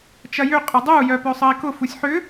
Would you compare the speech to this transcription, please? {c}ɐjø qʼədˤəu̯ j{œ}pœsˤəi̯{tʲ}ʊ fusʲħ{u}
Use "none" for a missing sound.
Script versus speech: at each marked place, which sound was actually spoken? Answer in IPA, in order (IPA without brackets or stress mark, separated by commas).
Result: t͡ʃ, œ, k, ʏ